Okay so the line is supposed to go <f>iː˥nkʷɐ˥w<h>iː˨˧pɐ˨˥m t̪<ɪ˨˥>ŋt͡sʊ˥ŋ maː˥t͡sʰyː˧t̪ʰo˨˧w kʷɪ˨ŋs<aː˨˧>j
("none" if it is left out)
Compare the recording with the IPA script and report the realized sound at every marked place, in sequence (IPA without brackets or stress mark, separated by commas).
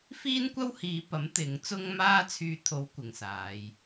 f, h, ɪ˨˥, aː˨˧